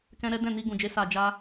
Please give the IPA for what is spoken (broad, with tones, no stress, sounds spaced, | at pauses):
k ɛ̃˦ ɾ ɛ˦ d ɛ̃˦˨ n i˧ ɡ ũ˨ d͡ʒ e˨˦ s a˧ d͡ʒ a˦